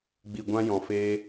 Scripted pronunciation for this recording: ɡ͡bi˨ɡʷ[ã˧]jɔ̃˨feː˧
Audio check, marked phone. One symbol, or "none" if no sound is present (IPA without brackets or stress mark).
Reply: ã˧